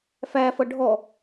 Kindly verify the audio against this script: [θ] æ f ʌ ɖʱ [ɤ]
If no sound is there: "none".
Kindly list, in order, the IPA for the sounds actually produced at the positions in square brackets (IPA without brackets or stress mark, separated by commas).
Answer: f, ɔ